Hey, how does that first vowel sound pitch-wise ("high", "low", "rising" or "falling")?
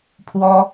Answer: high